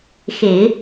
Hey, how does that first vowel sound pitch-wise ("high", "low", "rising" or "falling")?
low